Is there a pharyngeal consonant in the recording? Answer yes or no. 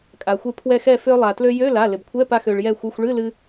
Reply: no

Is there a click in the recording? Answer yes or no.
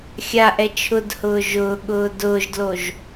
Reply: no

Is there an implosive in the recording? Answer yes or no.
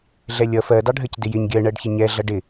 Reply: no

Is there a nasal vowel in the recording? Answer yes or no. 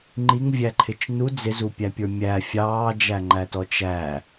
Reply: no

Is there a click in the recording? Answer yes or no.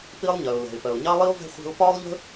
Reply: no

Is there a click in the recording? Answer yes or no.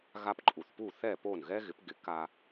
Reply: yes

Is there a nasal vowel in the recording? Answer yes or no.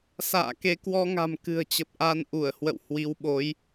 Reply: no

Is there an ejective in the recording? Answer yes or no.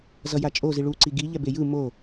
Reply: yes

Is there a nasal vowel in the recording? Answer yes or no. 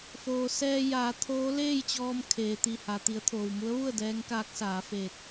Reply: no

